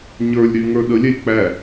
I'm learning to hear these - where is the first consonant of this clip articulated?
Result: palate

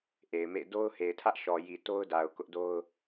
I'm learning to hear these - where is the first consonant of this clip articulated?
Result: throat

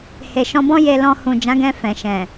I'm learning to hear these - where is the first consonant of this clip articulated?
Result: throat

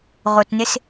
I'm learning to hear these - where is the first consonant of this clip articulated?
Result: uvula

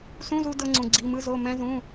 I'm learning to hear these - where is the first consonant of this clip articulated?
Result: tongue tip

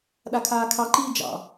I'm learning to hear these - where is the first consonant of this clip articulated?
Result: tongue tip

